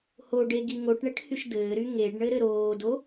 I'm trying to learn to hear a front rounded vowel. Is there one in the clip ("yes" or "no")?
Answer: yes